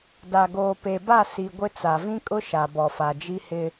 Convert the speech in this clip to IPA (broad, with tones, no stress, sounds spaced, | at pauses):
d a˨ ɡ oː˨ p e˨ b a˦˨ s i˨ ɡʷ ɪ˦ t͡s a˨ v ĩ˦ kʼ ʊ˦ ʃ a˨ b ɔ˨ f a˨ d͡ʒ i˦ h ɪ˦